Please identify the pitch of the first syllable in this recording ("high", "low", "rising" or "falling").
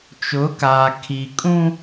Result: rising